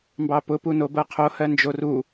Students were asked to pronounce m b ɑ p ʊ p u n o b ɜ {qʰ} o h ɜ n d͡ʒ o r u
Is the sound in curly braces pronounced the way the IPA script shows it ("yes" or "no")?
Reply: yes